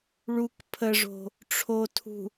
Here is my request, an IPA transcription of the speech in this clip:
ɭ u k pʰ ə ʐ o̤ | ʈ͡ʂʰ o tʰ ṳ

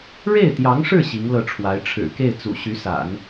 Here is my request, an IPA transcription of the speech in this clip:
ɻ e˥˩ ɪ̯ t̪ j ɑ˧˥ ŋ ʂ ɻ̩˥˩ ɕ i˧˥ ŋ l ɤ˥˩ ʈ͡ʂʰ w a˧˥ ɪ̯ ʈ͡ʂʰ ɻ̩˨˩ k e˥˩ ɪ̯ t͡s ṵ˨˩ ɕ y˧˥ s a̰˨˩˦ n

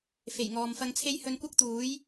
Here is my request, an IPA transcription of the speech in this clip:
f e˨˩ j ŋ ɔː˨ m f ɐ˧ ŋ t͡sʰ e˥ j h ɵ˧ n kʷ ɐ˥ k̚ t̪ uː˨˥ j

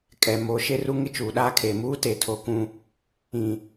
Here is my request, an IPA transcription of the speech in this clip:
kʼ ɛ˨ m o˨˦ ʃ e˦ r u˦ ŋ ɪ˦ t͡ʃ uː˨ ɗ aː˦ kʰ eː˨ m uː˦ t e˨ tʰ o˨ k ũ˦ | ĩ˦˨

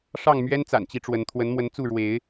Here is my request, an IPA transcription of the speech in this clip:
ʂ ɑ˥˨ ŋ m ɥ ɛ˦ n t͡s a̰˨˩ n t͡ɕ i˨˦ ʈ͡ʂ w ə˨˦ n t̪ʰ w ə˨˦ n m w ə˨˦ n t͡s u˥˨ ɻ w e˨˦ ɪ̯

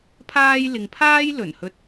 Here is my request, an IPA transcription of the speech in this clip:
pʰ aː˧ j l ɪ˨ ŋ pʰ aː˥ j l ɵ˨˩ n h ɵ˧ t̚

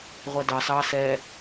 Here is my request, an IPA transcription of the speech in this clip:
ʁʷ ɛ d ɑ s ɑ s ɛ

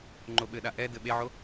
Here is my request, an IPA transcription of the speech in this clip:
ŋ͡ǃ o ɓ ɘ ɗ a ʔ ɛ d ɘ ɓ e ʕ o

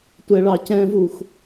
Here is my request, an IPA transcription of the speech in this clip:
tʷ ɛ ɭ ɑ c ɛ̃ v u x

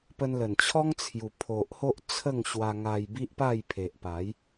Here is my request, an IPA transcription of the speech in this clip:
p ə˧ n l ə˨˩ n t͡ɕʰ ɔ˦ ŋ t͡sʰ j u˨˩ pʰ o˨ ʔ h o˦ ʔ t͡sʰ ə˥˧ ŋ ɕ w a˧ ŋ a˧ j b i˦ ʔ p a˥˧ j pʰ e˨ ʔ p a˨˦ j

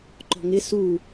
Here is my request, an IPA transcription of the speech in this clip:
ǃ ɔ̤ ŋ ɪ s u

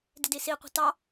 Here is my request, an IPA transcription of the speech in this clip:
d ɪ d i s i qʷ ə̤ t ɑ

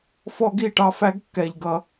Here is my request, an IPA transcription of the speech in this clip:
f ɔ˦ ɡ i˦˨ ʈ ɑ˧ f æ˦ ɡ kː ɛ˨ ʎ ɡ ʌ˨

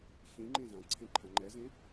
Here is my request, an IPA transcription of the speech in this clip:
ç ĩ ŋ͡ǃ ẽ z ã ǀʰ ẽ ǃʰ ã ŋ͡ǃ ɛ z ẽ

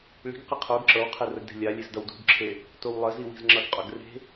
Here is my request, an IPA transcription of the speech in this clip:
ɭ i̤ ɡ q ə qʰ o ɡ ǁ ɤ w qʰ e r ə ɡ d e̤ lʲ a lʲ e z d ʌ w d ṳ ɡ ǁʰ e | t o w lˠ ə z i w i̤ z ŋ͡ǁ ʌ ɡ qʼ o ɡ r e̤

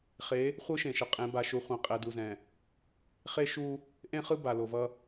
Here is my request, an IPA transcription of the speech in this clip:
χ e˨˦ | χʷ ɯ˦ ʃ ẽ˨ ʃ ʌ˨ qʼ ẽ˨˦ b a˨ ʃ u˨ χʷ ɛ̃˨ qʼ ɛ˨ d u˨ z ɛ̃˨ | χ e˦ ʃ u˦ | ʔ ẽ˦ χ ɯ˦ b a˨ l o˨ v ʌ˦

